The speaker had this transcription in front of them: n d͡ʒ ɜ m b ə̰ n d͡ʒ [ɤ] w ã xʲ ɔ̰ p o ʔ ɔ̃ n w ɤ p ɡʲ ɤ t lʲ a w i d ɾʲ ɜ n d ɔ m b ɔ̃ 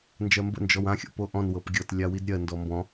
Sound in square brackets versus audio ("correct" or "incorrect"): incorrect